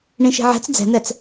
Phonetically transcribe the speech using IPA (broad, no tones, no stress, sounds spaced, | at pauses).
ɳ ĩ ʃ i̤ ʕ ɛ̤ t͡s d͡z ɛ̤ n̪ ɛ t͡s